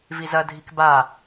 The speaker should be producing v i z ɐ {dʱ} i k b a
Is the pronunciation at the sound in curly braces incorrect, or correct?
correct